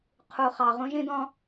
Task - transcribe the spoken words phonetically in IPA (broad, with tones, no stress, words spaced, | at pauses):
qʰu˨χɑ˨ ʁũ˦ʒĩ˦d̪ɔ̃˦